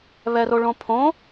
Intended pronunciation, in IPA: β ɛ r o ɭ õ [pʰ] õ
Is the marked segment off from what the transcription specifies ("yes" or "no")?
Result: no